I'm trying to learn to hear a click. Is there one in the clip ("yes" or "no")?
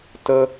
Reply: no